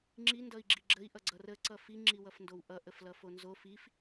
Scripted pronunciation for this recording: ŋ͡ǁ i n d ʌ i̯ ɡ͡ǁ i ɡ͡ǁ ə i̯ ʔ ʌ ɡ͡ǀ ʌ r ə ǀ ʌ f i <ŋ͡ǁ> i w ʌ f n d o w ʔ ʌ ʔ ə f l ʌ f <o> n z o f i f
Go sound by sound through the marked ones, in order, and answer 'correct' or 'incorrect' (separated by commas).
correct, correct